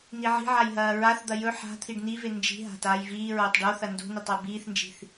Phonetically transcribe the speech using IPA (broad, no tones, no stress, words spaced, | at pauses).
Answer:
niʕi̤ʕaj ɦɐːɹaθd̪ɐ jɵ ħa̤ t̪ʰiɖnive nd͡ʒi̤ɦa̤ taːjviːɹoːtˤ ɖoθɐ ndo̤netˤ ɐbiːθnd͡ʒi̤θ